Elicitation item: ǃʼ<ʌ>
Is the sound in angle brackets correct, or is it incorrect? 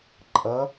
correct